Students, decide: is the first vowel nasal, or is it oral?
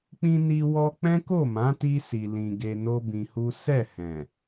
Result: nasal